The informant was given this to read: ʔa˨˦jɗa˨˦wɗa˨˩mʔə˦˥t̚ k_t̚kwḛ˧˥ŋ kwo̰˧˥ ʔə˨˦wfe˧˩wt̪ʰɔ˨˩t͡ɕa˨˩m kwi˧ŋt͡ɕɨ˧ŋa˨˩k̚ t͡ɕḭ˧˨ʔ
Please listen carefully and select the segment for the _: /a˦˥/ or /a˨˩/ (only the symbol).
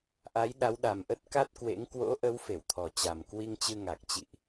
a˦˥